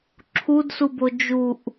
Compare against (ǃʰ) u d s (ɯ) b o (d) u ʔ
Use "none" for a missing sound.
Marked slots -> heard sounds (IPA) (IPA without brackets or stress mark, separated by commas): ǁʰ, u, d͡ʒ